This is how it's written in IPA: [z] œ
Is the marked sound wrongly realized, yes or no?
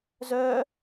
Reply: no